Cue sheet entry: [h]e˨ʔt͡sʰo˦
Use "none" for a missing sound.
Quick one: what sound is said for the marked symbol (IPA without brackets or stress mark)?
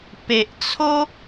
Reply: p